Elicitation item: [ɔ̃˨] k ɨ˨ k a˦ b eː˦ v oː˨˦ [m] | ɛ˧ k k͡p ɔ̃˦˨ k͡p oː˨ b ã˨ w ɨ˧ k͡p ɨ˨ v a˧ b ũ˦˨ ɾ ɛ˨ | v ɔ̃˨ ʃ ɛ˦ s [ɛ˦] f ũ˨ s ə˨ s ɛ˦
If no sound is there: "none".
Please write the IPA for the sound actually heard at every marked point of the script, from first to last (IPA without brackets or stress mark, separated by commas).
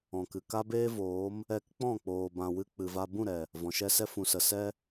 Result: ɔ̃˨, m, ɛ˦